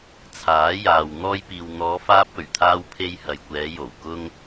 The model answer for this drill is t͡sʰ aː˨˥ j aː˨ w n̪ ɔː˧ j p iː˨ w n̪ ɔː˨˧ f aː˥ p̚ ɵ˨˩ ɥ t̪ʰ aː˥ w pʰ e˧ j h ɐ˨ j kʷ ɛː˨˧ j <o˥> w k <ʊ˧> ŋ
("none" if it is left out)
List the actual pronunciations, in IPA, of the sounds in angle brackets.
o˨˩, ʊ˥

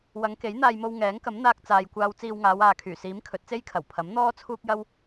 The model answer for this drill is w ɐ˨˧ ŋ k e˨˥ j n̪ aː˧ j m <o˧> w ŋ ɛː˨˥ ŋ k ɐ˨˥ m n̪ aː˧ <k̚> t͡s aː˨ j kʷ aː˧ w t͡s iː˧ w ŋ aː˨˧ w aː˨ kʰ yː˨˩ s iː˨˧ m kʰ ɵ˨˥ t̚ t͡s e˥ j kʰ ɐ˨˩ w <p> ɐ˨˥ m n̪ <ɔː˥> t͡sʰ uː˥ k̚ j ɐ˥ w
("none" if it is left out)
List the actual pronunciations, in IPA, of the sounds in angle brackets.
o˧, k̚, pʰ, ɔː˥

